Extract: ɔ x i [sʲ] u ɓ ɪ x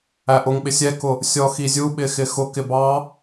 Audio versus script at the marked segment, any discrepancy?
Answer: yes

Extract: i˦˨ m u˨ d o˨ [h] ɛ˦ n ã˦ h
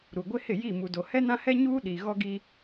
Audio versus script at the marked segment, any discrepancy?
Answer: no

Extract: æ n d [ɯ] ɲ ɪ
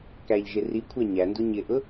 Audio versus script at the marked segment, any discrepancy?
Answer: yes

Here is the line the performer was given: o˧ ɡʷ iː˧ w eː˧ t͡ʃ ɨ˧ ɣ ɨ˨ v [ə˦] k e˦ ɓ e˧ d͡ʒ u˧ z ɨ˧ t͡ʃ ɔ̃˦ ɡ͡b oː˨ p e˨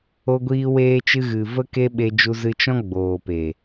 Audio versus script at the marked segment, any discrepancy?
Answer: no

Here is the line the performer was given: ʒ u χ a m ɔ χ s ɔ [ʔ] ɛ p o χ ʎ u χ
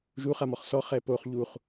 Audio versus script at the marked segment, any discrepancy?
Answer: yes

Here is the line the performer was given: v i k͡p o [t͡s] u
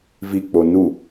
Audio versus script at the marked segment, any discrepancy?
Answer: yes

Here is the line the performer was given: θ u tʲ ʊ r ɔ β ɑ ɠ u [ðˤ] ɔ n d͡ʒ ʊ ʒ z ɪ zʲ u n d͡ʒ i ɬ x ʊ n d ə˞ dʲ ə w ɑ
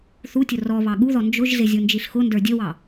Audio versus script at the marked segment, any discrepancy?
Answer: yes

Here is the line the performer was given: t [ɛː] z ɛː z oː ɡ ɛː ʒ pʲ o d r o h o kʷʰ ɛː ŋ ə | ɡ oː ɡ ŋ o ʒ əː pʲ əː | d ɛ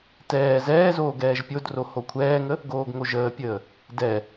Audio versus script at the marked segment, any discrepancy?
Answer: no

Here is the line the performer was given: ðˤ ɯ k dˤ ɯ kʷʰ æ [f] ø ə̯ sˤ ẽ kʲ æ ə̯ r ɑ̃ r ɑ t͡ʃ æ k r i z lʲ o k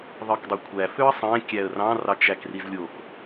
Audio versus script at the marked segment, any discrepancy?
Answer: no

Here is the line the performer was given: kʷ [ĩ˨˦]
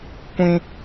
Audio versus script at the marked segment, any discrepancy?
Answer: yes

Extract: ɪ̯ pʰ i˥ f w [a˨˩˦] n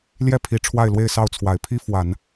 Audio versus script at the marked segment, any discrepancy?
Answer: no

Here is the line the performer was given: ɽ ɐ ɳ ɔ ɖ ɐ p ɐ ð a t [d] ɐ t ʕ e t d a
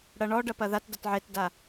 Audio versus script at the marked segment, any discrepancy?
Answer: no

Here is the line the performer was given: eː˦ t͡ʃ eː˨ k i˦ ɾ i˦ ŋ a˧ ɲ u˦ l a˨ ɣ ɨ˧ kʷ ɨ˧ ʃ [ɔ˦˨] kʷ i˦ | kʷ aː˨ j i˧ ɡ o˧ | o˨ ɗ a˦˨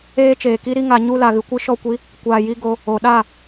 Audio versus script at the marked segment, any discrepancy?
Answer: no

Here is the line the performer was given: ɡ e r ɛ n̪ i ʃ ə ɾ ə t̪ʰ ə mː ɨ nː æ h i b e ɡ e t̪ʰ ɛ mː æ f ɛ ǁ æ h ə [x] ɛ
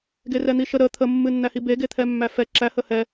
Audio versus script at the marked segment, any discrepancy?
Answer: yes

